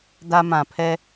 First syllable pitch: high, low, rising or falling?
high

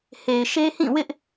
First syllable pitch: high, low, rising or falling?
low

